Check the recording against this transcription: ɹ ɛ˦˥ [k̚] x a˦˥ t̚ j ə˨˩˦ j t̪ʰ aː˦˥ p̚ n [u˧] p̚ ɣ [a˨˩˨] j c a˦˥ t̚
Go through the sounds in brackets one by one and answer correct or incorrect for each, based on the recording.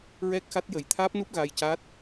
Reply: correct, incorrect, incorrect

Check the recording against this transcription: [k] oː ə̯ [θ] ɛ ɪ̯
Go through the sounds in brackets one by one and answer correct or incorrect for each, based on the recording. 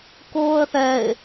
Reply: correct, correct

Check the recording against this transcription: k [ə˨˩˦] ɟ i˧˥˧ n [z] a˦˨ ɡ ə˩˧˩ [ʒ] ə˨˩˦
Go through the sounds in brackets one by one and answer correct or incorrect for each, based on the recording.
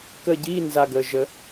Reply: incorrect, correct, correct

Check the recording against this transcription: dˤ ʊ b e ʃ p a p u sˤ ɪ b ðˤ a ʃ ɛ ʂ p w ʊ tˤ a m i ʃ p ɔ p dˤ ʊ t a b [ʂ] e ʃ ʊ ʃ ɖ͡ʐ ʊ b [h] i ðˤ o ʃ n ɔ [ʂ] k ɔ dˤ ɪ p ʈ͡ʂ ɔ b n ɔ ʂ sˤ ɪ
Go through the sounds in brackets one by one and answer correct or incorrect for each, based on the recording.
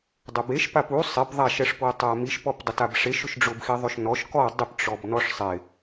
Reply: correct, incorrect, incorrect

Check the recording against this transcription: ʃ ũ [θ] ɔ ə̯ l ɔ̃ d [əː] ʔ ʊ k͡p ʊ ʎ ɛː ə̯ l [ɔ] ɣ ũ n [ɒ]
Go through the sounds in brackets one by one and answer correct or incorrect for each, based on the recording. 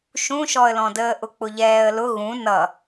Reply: incorrect, correct, incorrect, incorrect

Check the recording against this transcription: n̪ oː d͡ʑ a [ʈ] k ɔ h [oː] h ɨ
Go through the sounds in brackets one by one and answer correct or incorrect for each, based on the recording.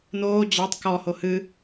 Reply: incorrect, incorrect

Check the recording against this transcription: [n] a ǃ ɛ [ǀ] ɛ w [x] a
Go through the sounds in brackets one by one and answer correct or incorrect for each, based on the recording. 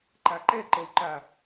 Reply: incorrect, incorrect, incorrect

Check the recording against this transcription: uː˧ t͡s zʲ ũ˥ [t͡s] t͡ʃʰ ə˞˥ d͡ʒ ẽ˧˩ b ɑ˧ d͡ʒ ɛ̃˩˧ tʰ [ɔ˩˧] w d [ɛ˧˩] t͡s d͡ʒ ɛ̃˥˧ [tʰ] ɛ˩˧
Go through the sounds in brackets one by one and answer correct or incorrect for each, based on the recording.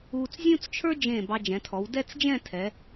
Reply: correct, correct, incorrect, correct

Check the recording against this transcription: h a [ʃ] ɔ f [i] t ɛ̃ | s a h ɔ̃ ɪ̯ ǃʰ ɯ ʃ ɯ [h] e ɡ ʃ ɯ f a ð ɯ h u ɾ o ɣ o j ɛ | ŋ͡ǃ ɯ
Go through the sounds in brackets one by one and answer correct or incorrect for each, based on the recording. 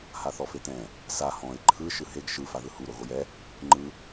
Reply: incorrect, incorrect, correct

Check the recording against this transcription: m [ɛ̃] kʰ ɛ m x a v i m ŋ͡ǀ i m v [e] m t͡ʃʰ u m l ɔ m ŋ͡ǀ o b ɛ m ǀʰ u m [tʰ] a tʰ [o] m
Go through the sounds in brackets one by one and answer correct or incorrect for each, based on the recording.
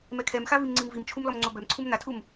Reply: incorrect, incorrect, incorrect, incorrect

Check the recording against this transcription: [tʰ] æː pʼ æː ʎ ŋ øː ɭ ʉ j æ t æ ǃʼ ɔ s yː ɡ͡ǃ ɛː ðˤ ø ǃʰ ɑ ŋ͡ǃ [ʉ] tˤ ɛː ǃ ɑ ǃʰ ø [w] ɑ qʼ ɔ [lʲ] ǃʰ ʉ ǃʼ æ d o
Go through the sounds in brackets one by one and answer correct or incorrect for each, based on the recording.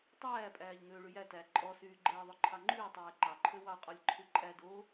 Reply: incorrect, incorrect, correct, correct

